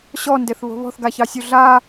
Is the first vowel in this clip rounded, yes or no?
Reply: yes